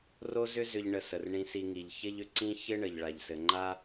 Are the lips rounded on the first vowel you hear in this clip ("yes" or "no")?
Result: yes